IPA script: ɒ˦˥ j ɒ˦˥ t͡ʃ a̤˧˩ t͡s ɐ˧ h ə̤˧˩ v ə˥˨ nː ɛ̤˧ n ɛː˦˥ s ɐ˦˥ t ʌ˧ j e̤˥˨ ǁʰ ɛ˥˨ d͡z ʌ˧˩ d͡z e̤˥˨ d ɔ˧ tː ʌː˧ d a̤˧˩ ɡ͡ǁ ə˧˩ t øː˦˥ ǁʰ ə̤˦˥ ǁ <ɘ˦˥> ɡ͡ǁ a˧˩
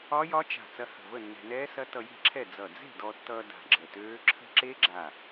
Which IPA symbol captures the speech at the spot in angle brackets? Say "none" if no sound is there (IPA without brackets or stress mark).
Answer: e˦˥